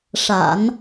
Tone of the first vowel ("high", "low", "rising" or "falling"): low